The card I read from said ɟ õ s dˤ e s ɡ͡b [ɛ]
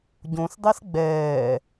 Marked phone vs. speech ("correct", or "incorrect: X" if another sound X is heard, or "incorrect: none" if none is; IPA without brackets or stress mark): incorrect: ɛː